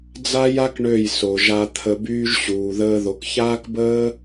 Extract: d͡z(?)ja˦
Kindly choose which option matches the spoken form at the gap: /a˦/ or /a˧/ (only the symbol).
a˦